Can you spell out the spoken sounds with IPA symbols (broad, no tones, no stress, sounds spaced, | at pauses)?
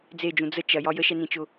d͡z e d͡ʒ ũ d͡z ə t͡ʃ ɐ j ɒ j ə ʃ ɛ n ĩ t͡ʃ ʊ